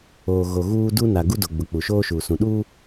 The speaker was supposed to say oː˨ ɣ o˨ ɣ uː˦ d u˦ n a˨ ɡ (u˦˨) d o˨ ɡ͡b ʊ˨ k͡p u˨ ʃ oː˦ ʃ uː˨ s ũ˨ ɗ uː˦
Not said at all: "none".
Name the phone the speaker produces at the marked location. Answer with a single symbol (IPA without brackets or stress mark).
u˦